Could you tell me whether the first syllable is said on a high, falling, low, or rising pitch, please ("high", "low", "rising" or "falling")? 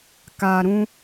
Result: low